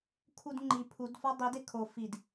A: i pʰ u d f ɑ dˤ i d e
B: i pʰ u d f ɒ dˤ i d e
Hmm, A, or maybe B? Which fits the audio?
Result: B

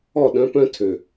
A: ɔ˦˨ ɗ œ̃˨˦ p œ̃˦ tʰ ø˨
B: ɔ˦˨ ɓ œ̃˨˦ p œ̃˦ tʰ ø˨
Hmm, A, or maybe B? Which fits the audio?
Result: A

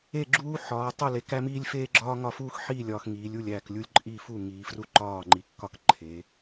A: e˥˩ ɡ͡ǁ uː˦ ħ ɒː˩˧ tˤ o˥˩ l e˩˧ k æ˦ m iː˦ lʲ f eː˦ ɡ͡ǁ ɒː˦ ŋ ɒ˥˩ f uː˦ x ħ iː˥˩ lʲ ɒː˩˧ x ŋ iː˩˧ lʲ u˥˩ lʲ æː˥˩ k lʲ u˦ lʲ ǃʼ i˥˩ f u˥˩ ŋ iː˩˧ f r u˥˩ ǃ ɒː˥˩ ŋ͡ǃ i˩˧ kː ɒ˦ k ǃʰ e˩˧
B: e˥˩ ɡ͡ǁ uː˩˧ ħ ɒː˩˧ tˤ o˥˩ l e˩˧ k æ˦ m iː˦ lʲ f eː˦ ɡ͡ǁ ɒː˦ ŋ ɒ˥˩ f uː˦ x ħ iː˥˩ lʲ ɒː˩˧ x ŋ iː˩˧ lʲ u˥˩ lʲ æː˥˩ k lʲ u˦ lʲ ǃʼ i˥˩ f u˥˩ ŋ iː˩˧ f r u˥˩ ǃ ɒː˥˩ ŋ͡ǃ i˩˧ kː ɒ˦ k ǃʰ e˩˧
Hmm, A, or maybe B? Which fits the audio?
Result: A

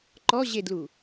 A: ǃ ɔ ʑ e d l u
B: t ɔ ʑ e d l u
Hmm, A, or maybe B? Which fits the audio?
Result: A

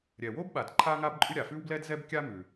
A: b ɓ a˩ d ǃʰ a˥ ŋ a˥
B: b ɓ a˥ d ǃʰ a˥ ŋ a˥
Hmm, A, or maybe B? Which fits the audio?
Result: A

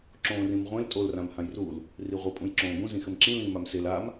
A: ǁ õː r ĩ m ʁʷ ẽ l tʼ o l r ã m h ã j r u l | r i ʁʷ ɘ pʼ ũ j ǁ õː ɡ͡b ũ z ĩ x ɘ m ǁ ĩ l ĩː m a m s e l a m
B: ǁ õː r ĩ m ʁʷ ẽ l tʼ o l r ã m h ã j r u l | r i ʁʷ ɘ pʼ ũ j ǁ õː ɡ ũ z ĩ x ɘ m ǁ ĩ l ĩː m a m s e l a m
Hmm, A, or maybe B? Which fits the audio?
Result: B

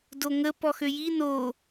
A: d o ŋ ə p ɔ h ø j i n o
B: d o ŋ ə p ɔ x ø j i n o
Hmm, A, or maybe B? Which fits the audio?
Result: B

